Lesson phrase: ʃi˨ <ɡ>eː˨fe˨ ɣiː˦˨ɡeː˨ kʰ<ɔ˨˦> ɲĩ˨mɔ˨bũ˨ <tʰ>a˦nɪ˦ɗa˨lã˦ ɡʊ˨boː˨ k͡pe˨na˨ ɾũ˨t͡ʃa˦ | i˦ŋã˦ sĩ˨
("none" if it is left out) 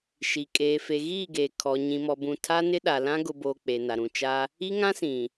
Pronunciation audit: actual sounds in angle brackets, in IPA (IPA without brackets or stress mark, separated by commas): kʼ, ɔ˨, tʰ